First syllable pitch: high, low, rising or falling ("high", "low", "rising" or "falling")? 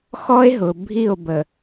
high